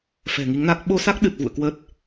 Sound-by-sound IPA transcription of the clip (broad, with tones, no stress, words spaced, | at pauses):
fɛ̤˨˩ŋi˨˦ŋna˦˥k̚ ɓo˧sa˦˥k̚ɗɨ˨˩t̚ vṵ˧˨ə̯ kwə˦˥t̚